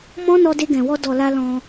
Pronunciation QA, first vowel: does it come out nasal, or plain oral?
nasal